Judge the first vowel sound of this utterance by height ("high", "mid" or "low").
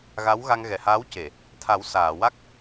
low